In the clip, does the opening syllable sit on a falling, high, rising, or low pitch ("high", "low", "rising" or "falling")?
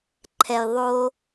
low